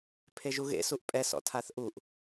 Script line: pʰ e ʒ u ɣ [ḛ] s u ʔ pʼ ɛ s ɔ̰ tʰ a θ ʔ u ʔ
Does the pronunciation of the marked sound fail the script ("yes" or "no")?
no